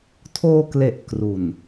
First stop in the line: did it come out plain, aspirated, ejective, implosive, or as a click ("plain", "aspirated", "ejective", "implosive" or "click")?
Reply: aspirated